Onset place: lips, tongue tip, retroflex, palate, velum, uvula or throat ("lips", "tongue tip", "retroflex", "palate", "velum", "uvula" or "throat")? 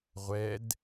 uvula